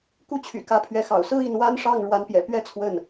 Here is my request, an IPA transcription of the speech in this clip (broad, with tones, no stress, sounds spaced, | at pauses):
k u˥˩ t͡ɕʰ y̰˨˩ k ä˥ pʰ ɥ ɛ˥˩ x ɑ̰˨˩ ʊ̯ s ɹ̩˥ i˥˩ n w a˥ n ʂ ɑ˥˩ ŋ ɻ w a˧˥ n p j ɛ̰˨˩ p ɥ ɛ˥ t͡sʰ w ə˥˩ n